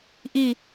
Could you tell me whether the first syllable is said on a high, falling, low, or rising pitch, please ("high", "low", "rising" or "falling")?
falling